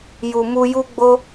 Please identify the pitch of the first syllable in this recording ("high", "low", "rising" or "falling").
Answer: low